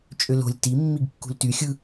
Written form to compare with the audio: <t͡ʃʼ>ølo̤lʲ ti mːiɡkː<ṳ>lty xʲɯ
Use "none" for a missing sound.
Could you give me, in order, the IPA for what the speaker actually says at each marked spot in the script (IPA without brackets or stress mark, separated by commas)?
t͡ʃʼ, ṳ